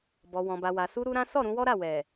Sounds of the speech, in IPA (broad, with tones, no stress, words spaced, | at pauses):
bɔ˨wɔ̃˨ba˨wa˨ su˧ɾu˧ ɾã˦ sɔ˦˨ɾũ˧wɔ˦ɾa˦˨ wɛ˨